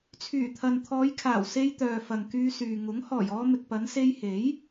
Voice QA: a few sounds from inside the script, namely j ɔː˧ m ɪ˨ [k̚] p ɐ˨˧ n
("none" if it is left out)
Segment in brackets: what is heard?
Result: k̚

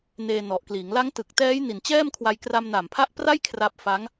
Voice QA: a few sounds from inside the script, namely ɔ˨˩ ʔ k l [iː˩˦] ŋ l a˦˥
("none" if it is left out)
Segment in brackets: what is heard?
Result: iː˩˦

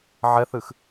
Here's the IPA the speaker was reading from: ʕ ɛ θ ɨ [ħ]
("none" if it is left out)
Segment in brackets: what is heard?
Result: x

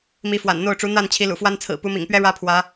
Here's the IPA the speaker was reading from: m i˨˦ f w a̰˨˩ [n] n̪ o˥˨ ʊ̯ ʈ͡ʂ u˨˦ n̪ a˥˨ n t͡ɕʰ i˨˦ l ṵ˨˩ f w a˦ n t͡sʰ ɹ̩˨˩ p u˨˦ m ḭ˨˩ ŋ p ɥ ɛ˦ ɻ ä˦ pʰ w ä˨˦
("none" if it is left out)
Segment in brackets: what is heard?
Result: n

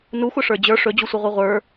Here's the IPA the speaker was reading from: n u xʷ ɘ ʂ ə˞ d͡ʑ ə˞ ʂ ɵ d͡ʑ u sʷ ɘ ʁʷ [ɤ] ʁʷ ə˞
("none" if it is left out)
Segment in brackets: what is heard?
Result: ɤ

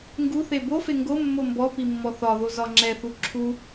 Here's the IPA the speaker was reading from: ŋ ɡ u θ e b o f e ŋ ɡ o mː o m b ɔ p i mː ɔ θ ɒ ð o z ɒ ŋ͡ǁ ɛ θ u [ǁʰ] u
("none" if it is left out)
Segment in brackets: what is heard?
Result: ǁʰ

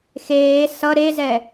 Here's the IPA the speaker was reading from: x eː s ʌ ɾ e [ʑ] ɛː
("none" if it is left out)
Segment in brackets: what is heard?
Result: z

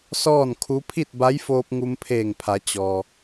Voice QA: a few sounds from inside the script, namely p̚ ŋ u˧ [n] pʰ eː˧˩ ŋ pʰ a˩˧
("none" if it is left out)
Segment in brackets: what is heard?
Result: m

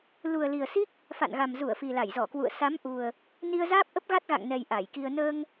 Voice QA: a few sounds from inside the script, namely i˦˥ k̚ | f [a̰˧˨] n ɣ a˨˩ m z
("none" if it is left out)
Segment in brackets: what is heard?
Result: a̰˧˨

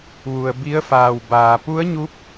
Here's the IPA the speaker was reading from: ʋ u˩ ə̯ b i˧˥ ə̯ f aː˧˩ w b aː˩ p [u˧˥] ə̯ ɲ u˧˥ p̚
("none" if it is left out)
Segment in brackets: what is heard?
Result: u˧˥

